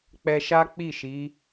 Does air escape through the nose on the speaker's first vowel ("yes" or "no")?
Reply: no